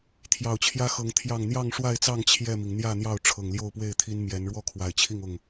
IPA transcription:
t̪ʰjɑ˨˩ʊ̯t͡ɕʰjä˦xɤ˨˦ŋ t̪ʰjɑ˨˩ŋ n̪jɑ˥˨ŋʂwa˥˨ɪ̯t͡sɑ˥˨ŋ t͡ɕʰjɛ˥˨mi˩ŋ n̪jä˥˨n̪jɑ˥˨ʊ̯ ʈ͡ʂʰɤ˨˩ŋljo˥˨ʊ̯pwe˥˨ɪ̯t̪ʰi˦n mjɛ˨˦n ɻwɔ˥˨kʰwa˨˩ɪ̯t͡ɕʰi˥˨ŋ ʊ˥˨ŋ

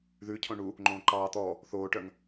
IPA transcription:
ðʉcʰõ ɳu | ŋ͡ǃõːǃɑː t̪ɔ | θoːʈœŋ

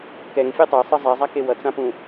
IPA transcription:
kɛŋfʲe tˤʌjsˤɯ zˤɛzˤake wʌt͡sãpũ

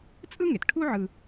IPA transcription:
t͡sʼɯ˥ŋe˩tʈʰu˥ ʕɯ˧

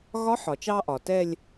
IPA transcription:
ɣɒ˧˥ħɒ˩t͡ʃɑ˧ʔɒ˩ tɛ˥˧lʲ

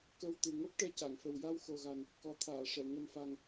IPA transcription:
kə˧wt̪ɨ˨˩ ŋo˦˥p̚ʈɛ˧ca˨˩˨ŋfə˨˩w ja˧wxo˨˩ɣa˨˩n | kɔ˨˩˦t̪ʰaː˨˩˨ʂɛ˨˩˨ ŋə˨˩mfa˨˩ŋ

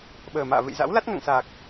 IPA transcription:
ɓəː˨˩ma̰ː˧˨vɨ̰˧˨jza̰˧˥w la˦˥t̚ŋa̰˧˨ŋsaː˨˩k̚

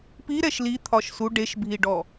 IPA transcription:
pi ɾɛʃli t̪ʰɒʃsu ɖeʃbʱiɖɔ

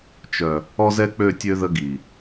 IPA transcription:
t͡ʃœ˨ | ɔ˦zɛ˦k͡pø˦˨tʲø˦ ðə˦ɡi˨

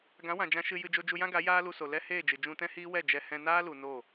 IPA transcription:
ɡã˨˦wã˨ d͡ʒã˧ʃɨ˧jɨ˧ d͡ʒo˧d͡ʒu˧jã˦ɡa˨˦ jaː˦lu˧so˨ lɛ˦heː˦˨d͡ʒɨ˨ d͡ʒũ˧tɛ̃˦hiː˦wɛ˦˨ d͡ʒɛ˧ hɛ̃˧naː˦lu˨ no˦˨

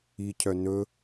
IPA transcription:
icʰœ nɵ

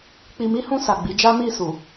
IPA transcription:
k͡pi˧mi˦hũ˦˨ sa˨ɡ͡bi˨˦d͡ʒa˦ mi˦˨ su˨

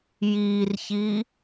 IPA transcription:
jiːrçiː

